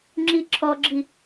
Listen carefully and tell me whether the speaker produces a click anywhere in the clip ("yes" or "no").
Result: yes